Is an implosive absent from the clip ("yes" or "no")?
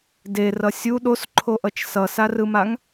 no